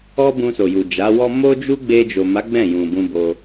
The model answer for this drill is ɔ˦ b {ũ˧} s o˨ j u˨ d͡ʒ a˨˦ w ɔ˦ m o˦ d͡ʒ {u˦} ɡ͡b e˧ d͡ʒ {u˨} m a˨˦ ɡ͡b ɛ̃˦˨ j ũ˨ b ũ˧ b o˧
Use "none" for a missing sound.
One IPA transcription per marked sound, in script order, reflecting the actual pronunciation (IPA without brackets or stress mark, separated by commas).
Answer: ũ˧, u˦, o˨